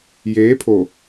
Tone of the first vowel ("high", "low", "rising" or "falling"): rising